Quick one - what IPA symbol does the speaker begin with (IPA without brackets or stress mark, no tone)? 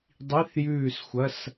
dˤ